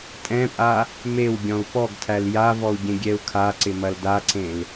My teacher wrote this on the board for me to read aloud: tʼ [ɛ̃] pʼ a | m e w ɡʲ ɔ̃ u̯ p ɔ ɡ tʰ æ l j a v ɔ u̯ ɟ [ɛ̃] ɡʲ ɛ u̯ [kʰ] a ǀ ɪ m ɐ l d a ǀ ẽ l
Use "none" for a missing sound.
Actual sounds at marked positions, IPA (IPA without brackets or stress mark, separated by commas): ɛ̃, ẽ, kʰ